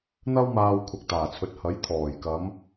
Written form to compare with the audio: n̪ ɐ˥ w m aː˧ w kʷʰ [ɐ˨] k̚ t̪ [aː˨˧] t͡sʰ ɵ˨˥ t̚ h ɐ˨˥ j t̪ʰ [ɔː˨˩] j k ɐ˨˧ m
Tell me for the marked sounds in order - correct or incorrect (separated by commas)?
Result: correct, incorrect, correct